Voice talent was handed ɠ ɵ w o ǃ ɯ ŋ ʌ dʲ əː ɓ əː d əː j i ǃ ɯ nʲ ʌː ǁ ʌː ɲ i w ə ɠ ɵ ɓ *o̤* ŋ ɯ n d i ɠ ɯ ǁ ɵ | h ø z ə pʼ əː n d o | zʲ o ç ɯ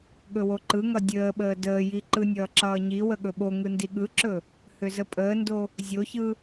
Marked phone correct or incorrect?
incorrect